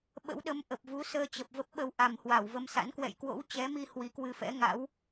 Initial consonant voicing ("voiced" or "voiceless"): voiced